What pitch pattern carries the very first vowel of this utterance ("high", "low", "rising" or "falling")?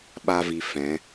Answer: high